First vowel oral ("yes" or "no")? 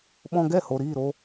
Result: no